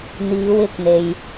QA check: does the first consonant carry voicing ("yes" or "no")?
yes